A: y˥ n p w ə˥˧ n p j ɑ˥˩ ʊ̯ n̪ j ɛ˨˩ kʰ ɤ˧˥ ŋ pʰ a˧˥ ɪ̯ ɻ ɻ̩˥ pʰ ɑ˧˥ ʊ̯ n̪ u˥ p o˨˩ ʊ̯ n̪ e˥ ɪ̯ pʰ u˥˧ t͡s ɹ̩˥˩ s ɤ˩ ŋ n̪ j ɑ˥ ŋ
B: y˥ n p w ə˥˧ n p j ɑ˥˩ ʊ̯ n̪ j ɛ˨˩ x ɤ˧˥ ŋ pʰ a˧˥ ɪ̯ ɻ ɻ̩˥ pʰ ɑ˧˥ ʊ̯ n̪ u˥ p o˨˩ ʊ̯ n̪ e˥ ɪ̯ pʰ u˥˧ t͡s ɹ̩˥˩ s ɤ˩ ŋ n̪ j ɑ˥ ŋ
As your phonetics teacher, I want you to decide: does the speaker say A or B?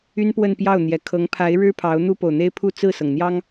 A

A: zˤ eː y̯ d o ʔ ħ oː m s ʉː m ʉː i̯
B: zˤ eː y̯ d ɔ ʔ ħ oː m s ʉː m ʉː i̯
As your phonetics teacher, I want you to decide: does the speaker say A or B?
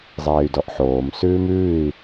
B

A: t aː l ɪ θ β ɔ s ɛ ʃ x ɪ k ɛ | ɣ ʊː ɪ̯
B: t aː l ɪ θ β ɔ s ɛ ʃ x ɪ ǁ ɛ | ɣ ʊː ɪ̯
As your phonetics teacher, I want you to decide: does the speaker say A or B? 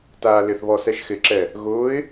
B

